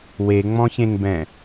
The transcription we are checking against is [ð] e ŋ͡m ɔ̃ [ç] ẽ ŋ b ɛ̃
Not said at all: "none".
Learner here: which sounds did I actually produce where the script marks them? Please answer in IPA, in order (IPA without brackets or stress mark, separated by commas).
w, ç